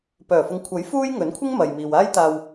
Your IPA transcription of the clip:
pœː˨˩fʊ˨ŋkʷʰɐ˨˥j fuː˥jŋɵ˨˥nkʷʰɪ˥ŋ mɐ˨jmiː˨waː˥jt̪aː˧w

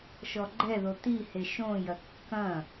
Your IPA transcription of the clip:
ʃɔɡ͡ǃɛðo t̪ihe ʃõjɐ kːɐ̃

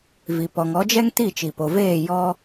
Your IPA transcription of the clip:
vi˧pɔ˧ŋ ɔ˨˦d͡ʒɛ˦ŋ ti˦˨t͡ʃi˨po˨veː˦˨ jɔ˦

